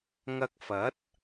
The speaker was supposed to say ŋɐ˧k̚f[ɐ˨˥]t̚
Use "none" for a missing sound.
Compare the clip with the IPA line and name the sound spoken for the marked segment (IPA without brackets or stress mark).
ɐ˨˥